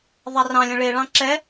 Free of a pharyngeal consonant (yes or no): yes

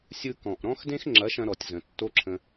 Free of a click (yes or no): no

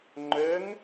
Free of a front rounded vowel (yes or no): no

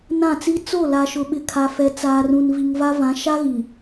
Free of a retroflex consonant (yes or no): yes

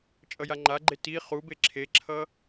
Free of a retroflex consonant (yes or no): yes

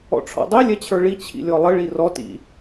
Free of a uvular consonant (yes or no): yes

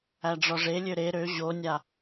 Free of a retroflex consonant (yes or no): no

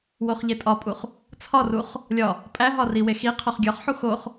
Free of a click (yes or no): yes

